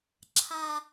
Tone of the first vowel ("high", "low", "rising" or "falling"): low